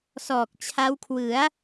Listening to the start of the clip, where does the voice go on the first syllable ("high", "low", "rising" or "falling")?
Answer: low